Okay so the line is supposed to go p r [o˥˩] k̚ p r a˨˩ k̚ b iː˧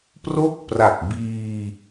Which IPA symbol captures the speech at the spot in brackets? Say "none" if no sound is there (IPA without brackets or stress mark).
o˦˥